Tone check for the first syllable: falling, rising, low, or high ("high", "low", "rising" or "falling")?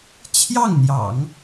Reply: falling